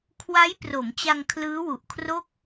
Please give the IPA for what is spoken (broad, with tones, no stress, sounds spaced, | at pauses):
kʰ w a˦˥ j p r o˩˦ m t͡ɕ a˧ ŋ kʰ l ɯː˦˥ w u˨˩ ʔ kʰ r o˥˩ k̚